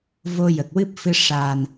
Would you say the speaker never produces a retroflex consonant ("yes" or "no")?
no